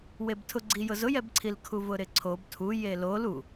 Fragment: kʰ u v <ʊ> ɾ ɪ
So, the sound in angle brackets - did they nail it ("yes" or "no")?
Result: yes